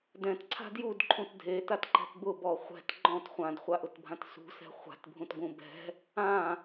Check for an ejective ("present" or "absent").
absent